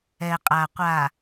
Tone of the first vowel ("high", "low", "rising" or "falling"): low